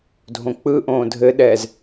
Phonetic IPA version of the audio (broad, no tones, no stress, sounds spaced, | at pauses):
dʱ õ k͡p ɯ ʔ õː dʱ ɘ ɗ ɛː z